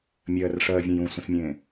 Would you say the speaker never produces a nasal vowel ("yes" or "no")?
no